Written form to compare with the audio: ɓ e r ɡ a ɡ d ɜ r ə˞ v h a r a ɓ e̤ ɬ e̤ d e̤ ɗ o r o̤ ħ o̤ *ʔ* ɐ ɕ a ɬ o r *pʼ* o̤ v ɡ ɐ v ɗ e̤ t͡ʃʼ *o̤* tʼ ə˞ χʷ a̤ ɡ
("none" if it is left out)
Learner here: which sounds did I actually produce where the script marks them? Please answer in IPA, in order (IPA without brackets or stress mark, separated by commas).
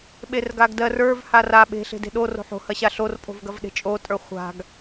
h, pʼ, o